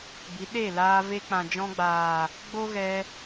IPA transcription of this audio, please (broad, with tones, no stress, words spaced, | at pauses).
bi˨˦ɗe˦˨laː˧ ve˧k͡pã˨d͡ʒɔ̃˧ɡ͡baː˨ | ɡ͡bo˦ɣɛ˧